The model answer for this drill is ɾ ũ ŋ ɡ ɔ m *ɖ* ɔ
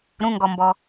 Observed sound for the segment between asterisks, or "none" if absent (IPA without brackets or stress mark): b